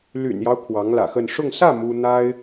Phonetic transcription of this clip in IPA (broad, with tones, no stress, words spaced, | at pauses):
ly̰˨˩njɑ˦ʊ̯ kʰwɑ˧˥ŋlä̰˨˩xə˥˧n ʂʊ˥˧ŋ sä˥˩ mu˥ n̪a˥ɪ̯